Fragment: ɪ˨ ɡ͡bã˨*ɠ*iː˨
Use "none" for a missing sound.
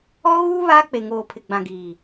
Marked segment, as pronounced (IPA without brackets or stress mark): ɡ